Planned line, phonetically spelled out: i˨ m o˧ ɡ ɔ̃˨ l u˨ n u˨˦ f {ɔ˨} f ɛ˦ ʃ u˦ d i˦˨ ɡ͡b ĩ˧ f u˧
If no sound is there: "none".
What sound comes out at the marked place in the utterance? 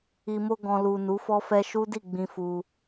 ɔ˦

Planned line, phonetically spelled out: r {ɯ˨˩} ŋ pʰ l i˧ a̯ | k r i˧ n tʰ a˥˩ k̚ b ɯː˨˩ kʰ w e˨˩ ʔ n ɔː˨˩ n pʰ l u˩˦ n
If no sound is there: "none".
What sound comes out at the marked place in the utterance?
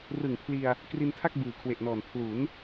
ɯ˨˩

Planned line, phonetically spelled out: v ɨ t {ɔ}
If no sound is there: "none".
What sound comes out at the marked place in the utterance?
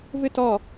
ɔ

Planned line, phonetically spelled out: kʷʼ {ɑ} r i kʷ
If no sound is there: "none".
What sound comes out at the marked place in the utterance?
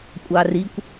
ɑ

